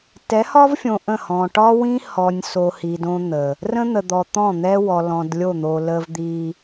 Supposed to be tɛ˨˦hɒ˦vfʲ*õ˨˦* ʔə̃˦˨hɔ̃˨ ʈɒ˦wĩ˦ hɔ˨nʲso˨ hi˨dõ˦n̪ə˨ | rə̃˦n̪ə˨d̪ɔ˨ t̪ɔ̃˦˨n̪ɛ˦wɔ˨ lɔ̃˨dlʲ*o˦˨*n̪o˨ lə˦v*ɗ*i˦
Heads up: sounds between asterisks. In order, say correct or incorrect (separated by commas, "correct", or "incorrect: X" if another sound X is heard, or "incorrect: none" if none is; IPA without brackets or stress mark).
incorrect: õ˨, correct, incorrect: d̪